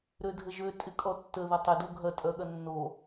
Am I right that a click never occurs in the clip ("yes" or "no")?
yes